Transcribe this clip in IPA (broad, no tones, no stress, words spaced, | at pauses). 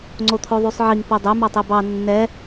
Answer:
ŋ͡ǀot̪ʰoðˤysˤʕiŋ podˤø mɑtˤebɑ nːɛ